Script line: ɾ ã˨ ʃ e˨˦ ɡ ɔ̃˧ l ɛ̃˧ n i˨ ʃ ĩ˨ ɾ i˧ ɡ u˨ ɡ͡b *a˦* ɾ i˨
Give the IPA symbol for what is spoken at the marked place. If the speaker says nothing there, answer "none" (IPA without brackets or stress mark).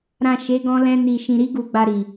a˨